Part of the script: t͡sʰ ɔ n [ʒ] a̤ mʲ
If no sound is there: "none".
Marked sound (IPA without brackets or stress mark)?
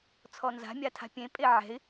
z